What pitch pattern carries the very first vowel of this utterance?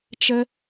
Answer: high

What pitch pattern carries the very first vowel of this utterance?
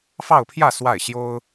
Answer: falling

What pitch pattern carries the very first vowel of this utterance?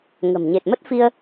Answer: low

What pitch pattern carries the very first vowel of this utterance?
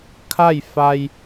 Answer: falling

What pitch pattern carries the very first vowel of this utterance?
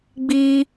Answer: high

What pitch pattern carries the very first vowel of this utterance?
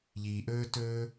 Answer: low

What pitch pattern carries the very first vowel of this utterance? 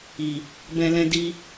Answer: low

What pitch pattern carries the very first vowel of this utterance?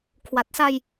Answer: low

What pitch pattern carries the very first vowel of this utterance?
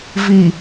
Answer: low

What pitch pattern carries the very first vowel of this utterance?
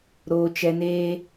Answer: high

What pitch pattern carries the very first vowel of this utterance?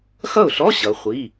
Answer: falling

